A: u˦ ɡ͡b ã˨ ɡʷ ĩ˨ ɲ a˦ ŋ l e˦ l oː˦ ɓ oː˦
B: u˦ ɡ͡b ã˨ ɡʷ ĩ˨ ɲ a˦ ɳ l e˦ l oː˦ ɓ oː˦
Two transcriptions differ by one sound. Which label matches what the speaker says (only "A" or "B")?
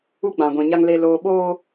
A